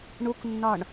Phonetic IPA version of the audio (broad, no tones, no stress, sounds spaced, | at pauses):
ɳ u k nː ɒ ɳ